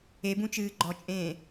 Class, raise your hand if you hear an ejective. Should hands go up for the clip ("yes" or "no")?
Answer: yes